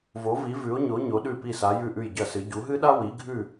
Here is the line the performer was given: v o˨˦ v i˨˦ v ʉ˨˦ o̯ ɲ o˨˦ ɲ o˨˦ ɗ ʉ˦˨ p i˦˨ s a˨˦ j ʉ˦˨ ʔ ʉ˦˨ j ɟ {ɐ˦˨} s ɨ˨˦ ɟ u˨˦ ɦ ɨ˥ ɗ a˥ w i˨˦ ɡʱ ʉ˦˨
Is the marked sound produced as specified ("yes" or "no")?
yes